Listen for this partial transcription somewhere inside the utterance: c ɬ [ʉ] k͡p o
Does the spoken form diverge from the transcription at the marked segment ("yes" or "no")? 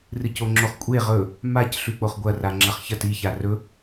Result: no